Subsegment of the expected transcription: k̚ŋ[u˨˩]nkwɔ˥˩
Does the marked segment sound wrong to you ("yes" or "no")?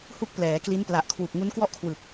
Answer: yes